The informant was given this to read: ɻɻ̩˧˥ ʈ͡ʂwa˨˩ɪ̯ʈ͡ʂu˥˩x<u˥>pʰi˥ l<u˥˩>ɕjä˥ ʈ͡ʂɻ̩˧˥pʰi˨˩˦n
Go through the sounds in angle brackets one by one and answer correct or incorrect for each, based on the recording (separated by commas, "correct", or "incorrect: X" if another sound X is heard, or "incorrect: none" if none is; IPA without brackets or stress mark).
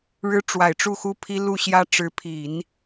correct, correct